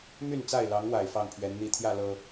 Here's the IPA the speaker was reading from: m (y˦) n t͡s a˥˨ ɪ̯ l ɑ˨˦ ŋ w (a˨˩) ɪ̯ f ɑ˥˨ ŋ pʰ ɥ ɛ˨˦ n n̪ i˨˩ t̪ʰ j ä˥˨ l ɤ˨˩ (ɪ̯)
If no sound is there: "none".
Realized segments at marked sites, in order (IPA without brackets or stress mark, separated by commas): y˥˨, a˨˩, none